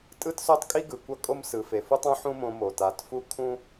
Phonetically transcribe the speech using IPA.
tʼ ɯ˦ t s o˦ tˤ kʼ i˦ ɡ ɯ˨ kʷ ʌ˦˨ kʼ o˦ m s ɯ˨ f e˨ f u˦ tˤ ũ˦ ħ ũ˦ m õ˧ m o˨ t a˨˦ t f u˦ kʰ ũ˦

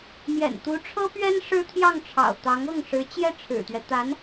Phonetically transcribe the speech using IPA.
m j ɛ̰˨˩ n t̪ u˧˥ ʈ͡ʂʰ ɤ˥ p ɥ ɛ˥ n ʂ ɻ̩˥ t̪ʰ j ɑ˥˩ ŋ ʈ͡ʂʰ ɑ̰˨˩ ʊ̯ t̪ ɑ˧˥ ŋ ɤ˥˩ ŋ ʂ ɻ̩˧˥ t͡ɕ j ɛ˥˩ ʈ͡ʂʰ ɻ̩˨˩ t̪ ɥ ɛ˦ t̪ a˧˥ n

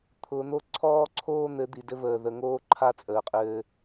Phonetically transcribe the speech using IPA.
t̪ʰ ʊ˨ n̪ o˦ ǀʰ ɔː˦ ǀʰ oː˦ n̪ ɘ˨˦ d̪ i˨ d ɘ˦ v əː˨ ð ə˨ ŋ oː˦ ǃʰ a˦ t͡sʼ əː˨ qʼ ɘː˦

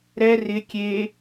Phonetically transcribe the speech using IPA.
ɾ ɛ r ɪ kʲ e

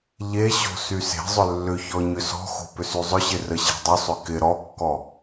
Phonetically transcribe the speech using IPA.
ʎ e ɕ o̤ s y s e̤ zˤ ʏ lː ʏ ç ɔ ɲ ʏ s ɔ̤ x o̤ p ʏ s y zˤ ʏ ɕ ɪ r ə ɕ e̤ dˤ ʏ sˤ ʏ k ɪ ɾ ɔ kː ɔ

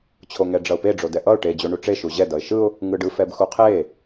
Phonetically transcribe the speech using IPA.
t͡ɕʰ o ŋ ɛ ɖ͡ʐ ʌ ʊ̯ p e ɖ͡ʐ o d ɛ ʔ ʌ ʊ̯ ʈ e d͡ʑ o ɳ u ʈ͡ʂ e ʃ u ʑ ɛ d ʌ ɪ̯ ʃ ɯ ʊ̯ | ŋ ɯ ɖ ɯ f ɛ b x u qʰ e

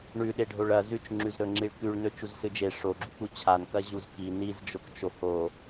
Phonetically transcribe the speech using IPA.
ɳ ʉ ɗ e ɖʱ o ɭ ɐ z ʉ t͡ʃ ŋ͡ǁ ʉ z ɾ ɵ ŋ͡ǁ i ɭ k ʉ ɭ n ɵ t͡ʃ u z s ɨ d͡ʒ e ʂ o ɡ͡ǁ u k͡p u t͡ɕʰ a n k ɐ ʑ u z k i n i z d͡ʒ o k t͡ʃ o h o

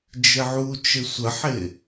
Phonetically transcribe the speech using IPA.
d͡ʒ ɪ ʕ u t͡ʃ ɪ sʷ ə ħ ɪ

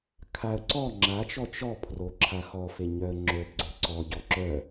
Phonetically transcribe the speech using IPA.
kʰ a ə̯ ǀ ɔ ŋ͡ǁ a t͡ʃ ɔ t͡ʃ ɔ pʰ r o ǁʰ a x ɔ f e ɲ œ ə̯ ŋ͡ǁ o b ɡ͡ǀ e ǀ ɔ ɟ ɔ ǁ œ

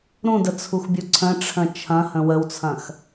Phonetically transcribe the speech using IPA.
ɾ ũ d ə t͡sʰ u x bʲ u ǀʰ ə̃ ʈ͡ʂʰ ə̃ t͡ʃʰ ɐ̃ h ə̃ w ə w t͡sʰ ɐ̃ x

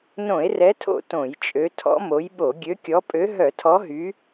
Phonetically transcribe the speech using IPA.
n õ˧˩˧ e̯ r ɛ˨˦ tʰ o̰˧˩˧ t õ˧˩˧ j t͡ʃʼ ø˨˦ tʰ ɔ̰˨˦ m o˨˦ j ɓ o˧˩˧ ɡʲ ø˨˦ kʲ ɔ˨˦ pʼ ø˨˦ ɦ œ˧˩˧ tʰ ɔ˨˦ ɦ y˨˦

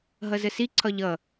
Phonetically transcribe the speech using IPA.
ɦ ʌ z ə s i ǀʰ ɒ ʎ ʌ

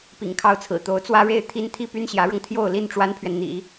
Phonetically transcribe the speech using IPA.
p ḭ˨˩ ŋ kʰ ɑ˥˩ ʊ̯ t͡sʰ ɹ̩˨˩ t̪ o˧˥ ʊ̯ t͡s w ä˥ ɻ e˥˩ ɪ̯ t̪ʰ i˥ n t̪ʰ i˥˩ p y˥ n ɕ j ä˧˥ ɻ ɤ˧ ŋ t̪ʰ j o˥˧ ʊ̯ l i˥˩ n ʈ͡ʂ w a˥ n pʰ ɥ ɛ˨ n n̪ ḭ˨˩˦

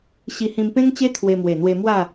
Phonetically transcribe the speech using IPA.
ɕ i˧ h ĩ˧ m p ẽ˦ ŋ t͡ɕ e˦ t̪ʰ w e˧ m w e˨˩ n̪ w e˧ m w a˥˧

